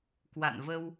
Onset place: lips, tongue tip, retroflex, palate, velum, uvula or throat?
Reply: velum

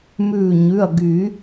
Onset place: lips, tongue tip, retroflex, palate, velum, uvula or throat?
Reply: lips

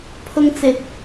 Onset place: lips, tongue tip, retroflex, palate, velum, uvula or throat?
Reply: lips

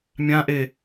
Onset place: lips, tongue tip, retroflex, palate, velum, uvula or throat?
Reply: lips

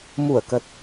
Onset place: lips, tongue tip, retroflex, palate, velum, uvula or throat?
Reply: lips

